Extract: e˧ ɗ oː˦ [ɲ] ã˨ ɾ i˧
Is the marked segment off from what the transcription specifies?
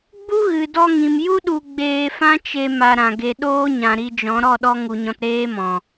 no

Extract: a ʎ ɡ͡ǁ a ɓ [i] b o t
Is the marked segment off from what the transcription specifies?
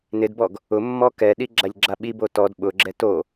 no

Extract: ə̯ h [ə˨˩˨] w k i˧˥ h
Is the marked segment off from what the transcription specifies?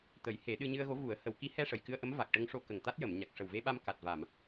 no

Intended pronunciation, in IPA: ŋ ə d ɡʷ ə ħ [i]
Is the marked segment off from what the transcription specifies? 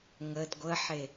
yes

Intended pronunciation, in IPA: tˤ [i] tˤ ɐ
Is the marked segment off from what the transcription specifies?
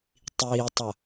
yes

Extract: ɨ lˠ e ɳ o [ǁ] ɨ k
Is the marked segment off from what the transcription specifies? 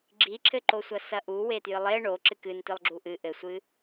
no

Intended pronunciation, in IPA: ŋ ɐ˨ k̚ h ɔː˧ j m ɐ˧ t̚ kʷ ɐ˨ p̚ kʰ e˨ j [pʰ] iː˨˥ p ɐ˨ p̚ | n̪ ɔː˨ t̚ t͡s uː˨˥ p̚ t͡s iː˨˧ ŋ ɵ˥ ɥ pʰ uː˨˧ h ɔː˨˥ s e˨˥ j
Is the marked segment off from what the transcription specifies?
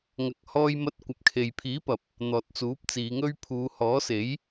no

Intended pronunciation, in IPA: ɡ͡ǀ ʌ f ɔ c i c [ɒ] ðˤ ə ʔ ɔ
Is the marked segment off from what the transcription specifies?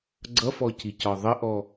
no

